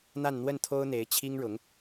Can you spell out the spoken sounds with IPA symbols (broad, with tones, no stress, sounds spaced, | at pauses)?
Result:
n̪ a˥˧ n n̪ w ə˥˩ n t̪ʰ o˥ ʊ̯ n̪ e˧˥ ɪ̯ t͡ɕʰ i˥ ŋ ɻ ʊ˧˥ ŋ